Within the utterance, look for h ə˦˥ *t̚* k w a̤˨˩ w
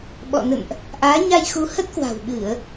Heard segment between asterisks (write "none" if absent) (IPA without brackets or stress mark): t̚